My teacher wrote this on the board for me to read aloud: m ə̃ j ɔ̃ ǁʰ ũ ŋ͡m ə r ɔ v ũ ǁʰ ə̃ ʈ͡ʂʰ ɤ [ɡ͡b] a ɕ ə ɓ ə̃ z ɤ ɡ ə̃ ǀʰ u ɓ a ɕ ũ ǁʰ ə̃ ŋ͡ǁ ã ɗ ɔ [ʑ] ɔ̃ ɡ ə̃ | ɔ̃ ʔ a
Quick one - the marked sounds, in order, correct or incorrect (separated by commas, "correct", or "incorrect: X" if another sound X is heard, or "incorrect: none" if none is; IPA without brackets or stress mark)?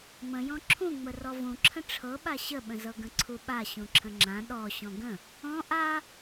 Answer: incorrect: ɓ, incorrect: ɕ